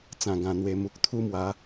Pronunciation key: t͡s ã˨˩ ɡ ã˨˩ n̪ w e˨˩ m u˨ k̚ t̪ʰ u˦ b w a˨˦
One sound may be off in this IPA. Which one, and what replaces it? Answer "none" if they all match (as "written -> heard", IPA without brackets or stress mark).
b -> m